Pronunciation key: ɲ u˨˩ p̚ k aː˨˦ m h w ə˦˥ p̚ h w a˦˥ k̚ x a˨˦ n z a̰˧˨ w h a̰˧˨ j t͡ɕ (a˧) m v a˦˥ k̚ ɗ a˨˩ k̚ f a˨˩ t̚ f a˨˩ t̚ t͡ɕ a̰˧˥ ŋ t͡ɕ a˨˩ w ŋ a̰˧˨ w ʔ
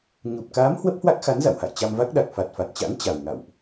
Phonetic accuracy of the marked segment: correct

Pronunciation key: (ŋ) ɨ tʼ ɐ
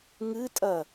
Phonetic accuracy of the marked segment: correct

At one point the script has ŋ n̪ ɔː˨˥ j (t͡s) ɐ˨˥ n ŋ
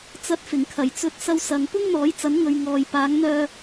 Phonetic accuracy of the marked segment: correct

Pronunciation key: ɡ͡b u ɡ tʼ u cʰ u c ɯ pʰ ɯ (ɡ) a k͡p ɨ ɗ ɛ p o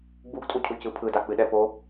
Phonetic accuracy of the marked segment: incorrect: d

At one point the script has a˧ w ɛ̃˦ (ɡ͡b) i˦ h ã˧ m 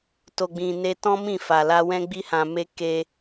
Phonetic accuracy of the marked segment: correct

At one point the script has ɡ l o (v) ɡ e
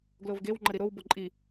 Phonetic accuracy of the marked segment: correct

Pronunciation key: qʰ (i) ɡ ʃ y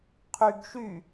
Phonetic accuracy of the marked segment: incorrect: y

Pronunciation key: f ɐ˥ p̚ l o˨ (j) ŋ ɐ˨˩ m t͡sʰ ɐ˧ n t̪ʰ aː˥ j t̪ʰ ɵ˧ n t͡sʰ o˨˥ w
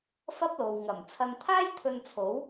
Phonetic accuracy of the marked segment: incorrect: w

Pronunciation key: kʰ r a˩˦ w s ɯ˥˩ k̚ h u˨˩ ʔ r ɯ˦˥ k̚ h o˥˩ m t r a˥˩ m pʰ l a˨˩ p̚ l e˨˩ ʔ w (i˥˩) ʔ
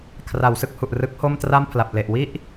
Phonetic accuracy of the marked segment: correct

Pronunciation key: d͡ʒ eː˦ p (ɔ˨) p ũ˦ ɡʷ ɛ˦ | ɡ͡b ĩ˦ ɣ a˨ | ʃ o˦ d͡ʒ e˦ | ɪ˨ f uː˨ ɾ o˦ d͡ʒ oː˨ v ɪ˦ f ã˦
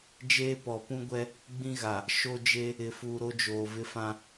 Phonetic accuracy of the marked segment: correct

